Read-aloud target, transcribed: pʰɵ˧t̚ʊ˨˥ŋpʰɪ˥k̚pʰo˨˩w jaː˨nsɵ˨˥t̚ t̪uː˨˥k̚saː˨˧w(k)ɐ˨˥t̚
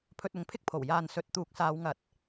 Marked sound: incorrect: ŋ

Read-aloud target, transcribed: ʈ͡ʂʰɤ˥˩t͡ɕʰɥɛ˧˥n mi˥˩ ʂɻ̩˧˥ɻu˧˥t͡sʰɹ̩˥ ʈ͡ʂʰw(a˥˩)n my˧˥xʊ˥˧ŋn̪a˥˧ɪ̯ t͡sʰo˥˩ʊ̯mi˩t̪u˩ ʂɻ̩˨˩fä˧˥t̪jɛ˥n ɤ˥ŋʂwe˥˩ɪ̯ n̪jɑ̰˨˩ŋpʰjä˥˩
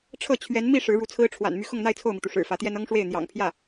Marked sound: incorrect: a̰˨˩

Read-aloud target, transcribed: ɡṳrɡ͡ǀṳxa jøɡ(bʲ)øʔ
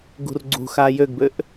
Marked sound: incorrect: b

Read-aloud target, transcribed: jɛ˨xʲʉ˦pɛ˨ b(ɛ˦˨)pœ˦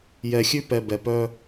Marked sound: incorrect: ɛ˨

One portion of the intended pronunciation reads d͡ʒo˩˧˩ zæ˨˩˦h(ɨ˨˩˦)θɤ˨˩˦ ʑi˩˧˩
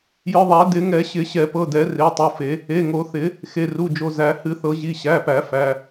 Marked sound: correct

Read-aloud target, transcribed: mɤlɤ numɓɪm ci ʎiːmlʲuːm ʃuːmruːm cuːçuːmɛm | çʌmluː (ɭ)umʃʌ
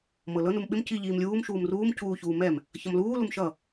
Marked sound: incorrect: l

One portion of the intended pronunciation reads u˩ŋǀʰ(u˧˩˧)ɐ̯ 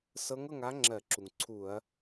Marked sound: correct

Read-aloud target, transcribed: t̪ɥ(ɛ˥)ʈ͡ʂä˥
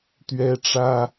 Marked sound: correct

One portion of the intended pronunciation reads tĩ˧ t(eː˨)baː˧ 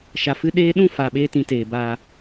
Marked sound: correct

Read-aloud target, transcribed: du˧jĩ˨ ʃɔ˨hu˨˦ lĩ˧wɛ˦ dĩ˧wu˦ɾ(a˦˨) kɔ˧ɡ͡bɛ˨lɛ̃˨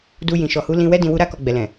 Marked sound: incorrect: a˦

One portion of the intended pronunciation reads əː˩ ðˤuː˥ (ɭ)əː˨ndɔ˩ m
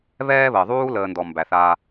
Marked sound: incorrect: l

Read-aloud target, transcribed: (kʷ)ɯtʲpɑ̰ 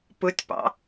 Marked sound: incorrect: p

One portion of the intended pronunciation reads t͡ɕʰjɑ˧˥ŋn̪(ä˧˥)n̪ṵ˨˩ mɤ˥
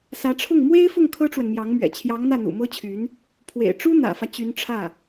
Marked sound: incorrect: ä˥˩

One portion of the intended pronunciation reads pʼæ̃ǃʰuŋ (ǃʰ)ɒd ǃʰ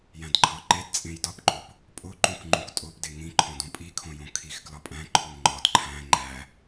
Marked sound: incorrect: ŋ͡ǃ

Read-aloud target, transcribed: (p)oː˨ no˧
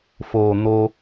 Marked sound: incorrect: f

